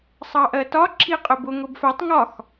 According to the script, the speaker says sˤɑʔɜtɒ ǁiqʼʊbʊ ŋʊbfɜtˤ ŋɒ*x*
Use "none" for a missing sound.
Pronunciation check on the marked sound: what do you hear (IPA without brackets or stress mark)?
x